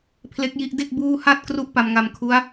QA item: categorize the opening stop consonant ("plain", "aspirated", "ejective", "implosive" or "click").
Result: aspirated